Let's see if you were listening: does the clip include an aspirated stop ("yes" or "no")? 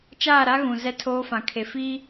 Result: yes